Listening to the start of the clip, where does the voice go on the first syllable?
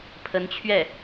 rising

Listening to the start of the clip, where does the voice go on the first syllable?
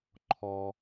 high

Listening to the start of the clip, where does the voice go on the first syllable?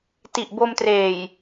low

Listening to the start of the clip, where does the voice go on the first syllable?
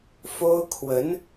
high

